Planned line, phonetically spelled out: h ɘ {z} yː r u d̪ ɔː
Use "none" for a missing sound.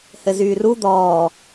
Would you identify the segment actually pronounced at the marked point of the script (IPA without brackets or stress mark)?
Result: z